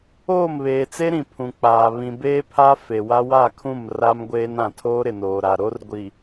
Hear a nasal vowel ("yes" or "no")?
yes